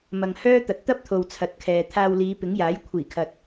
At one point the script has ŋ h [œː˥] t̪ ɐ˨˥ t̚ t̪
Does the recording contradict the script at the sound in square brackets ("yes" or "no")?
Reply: no